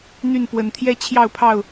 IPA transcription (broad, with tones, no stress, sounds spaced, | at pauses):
n̪ y˥˨ n p w ə˨˦ n t̪ʰ j ɛ˦ t͡ɕʰ j ɑ˥˨ ʊ̯ pʰ ɑ˥˨ ʊ̯